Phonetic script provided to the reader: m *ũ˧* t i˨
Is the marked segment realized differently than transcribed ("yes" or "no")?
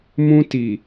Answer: no